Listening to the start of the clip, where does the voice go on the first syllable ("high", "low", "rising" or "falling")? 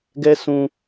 high